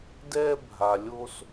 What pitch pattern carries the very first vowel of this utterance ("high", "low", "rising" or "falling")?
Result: high